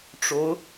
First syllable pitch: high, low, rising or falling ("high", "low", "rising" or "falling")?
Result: rising